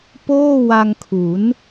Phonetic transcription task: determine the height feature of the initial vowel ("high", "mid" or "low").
mid